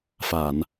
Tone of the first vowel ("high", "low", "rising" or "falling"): low